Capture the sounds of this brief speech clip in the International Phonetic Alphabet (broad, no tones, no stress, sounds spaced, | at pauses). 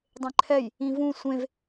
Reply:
dˤ ẽ ǃʰ ɛ j | ĩ v ũ sʷ ẽ v